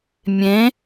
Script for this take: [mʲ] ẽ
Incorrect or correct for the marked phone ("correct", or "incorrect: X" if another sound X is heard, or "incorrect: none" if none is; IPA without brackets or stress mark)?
correct